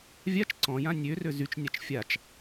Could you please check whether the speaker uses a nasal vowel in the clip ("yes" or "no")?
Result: yes